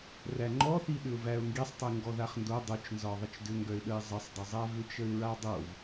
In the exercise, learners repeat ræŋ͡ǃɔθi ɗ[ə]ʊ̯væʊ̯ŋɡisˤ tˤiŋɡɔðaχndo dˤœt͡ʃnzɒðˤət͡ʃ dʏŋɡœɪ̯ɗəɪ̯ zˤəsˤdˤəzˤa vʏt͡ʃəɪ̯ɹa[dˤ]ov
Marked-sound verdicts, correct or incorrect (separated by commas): incorrect, correct